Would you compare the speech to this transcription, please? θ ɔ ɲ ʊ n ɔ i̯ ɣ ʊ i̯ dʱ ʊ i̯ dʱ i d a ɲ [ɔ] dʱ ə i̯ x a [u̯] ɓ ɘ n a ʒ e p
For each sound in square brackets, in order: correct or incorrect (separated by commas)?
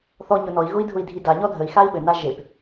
correct, incorrect